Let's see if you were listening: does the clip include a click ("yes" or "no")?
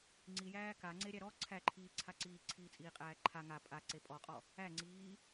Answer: yes